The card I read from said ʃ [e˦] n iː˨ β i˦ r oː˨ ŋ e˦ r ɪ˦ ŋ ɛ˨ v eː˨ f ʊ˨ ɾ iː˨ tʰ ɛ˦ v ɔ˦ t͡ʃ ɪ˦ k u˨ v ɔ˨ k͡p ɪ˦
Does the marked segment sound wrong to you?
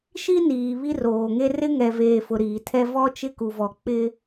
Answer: yes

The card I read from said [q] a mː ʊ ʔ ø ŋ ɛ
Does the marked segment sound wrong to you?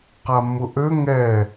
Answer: no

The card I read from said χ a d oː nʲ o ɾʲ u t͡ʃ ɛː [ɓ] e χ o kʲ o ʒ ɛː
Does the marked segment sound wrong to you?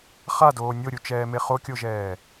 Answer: yes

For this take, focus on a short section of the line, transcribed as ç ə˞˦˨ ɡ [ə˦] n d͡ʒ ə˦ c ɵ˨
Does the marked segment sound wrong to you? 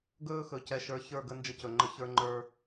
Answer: no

